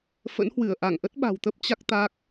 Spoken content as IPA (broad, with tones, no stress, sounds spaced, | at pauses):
f ə̰˧˥ n h w ɨ˧˩ ə̯ ʔ a˧˩ ŋ ʔ ə˦˥ t̚ ɓ a̤˨˩ w t̪ ə˦˥ p̚ t͡ɕ a˦˥ k̚ t̪ a˦˥ k̚